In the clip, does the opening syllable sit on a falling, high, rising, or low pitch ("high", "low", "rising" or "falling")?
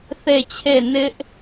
falling